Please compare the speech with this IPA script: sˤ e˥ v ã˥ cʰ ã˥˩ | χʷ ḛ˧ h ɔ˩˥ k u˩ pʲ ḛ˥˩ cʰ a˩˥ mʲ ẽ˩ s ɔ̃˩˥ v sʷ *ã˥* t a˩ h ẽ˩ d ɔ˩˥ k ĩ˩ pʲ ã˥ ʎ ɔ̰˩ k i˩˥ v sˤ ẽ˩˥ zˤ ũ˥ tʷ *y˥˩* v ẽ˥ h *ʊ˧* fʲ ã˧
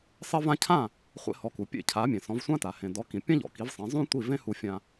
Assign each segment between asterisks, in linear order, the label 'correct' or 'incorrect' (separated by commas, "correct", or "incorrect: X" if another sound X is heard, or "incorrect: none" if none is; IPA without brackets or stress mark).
correct, incorrect: i˥˩, incorrect: u˧